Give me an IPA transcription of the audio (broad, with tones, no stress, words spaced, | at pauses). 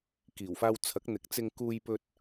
kiː˨˩wfaː˧w t͡sʰɐ˨˥k̚n̪ɪ˨˥k̚t͡sɪ˧ŋ kuː˧jpɵ˧t̚